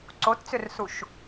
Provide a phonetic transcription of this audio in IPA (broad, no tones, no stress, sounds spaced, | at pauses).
ǀ o t t͡s ʏ r s u ʃ